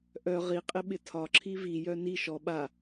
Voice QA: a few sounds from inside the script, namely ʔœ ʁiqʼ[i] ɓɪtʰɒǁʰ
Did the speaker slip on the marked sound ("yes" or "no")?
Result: yes